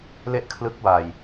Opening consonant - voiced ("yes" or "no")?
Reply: yes